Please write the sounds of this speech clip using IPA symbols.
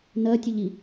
n ɜ tʲ ʊ ʎ i

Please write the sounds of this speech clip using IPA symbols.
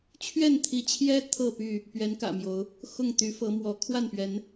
t͡ɕʰ ɥ ɛ˥˨ n t̪ʰ i˨˦ t͡ɕʰ j ɛ˦ t̪ʰ ɤ˥˨ p y˥˨ | p ɥ ɛ˨˦ n k ä̰˨˩ m j o˨˦ ʊ̯ | x ʊ˥˨ ŋ t̪ y˨˦ f ɤ˨˦ m w ɔ˨˦ kʰ w a˥˨ n p ɥ ɛ˨˦ n

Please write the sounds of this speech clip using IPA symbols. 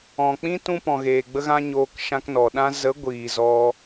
ɔ̃˨ k͡p ĩ˦ t ũ˦ p ɔ̃˨ ɣ eː˨ ɡ͡b ə˦ ɣ ã˦ ɲ oː˧ k ʃ ã˧ k n ɔ˨ ɗ ã˦ z ə˨˦ ɡʷ iː˨ z ɔ˧

